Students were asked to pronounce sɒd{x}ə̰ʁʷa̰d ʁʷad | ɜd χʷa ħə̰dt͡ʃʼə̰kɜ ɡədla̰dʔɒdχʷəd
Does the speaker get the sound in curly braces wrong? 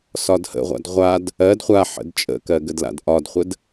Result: yes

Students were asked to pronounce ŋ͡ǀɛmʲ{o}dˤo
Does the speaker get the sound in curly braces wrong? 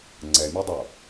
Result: yes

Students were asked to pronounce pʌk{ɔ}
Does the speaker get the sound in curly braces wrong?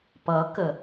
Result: yes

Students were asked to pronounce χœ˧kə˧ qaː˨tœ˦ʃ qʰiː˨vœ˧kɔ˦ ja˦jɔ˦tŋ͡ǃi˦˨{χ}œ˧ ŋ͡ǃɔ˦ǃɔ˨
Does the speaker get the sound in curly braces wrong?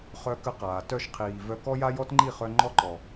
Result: no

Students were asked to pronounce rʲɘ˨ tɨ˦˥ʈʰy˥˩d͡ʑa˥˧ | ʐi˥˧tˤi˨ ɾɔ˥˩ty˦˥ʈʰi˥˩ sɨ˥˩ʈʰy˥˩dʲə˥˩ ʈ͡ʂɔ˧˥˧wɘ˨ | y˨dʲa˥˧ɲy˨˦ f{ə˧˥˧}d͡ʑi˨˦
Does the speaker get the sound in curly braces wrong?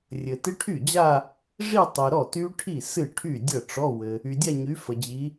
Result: yes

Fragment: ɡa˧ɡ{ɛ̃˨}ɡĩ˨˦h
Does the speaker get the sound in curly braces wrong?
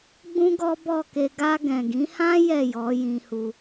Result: no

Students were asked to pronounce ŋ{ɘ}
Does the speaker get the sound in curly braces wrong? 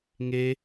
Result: yes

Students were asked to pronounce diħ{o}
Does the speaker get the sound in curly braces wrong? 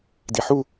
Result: yes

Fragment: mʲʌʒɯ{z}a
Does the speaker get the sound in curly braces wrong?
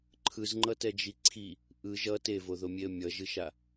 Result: yes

